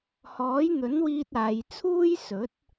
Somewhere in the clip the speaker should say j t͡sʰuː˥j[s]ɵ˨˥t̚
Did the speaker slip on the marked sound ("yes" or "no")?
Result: no